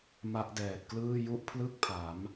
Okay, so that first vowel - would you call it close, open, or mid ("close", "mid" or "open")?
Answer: open